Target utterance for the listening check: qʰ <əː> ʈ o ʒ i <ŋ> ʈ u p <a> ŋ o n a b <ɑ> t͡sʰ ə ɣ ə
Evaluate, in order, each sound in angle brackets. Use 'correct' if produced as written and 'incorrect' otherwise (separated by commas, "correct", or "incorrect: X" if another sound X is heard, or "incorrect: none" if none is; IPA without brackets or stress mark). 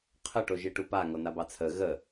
incorrect: ə, incorrect: none, correct, correct